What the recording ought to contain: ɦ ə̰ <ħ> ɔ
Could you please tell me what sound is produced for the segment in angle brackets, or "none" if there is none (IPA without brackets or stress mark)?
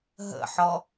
ħ